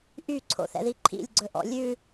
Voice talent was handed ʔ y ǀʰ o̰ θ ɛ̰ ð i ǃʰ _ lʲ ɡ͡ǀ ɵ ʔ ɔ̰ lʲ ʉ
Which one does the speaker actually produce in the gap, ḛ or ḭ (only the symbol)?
ḭ